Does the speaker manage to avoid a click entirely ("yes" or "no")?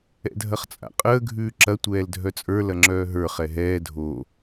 no